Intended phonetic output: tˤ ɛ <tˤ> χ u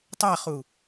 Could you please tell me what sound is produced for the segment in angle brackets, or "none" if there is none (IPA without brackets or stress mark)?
none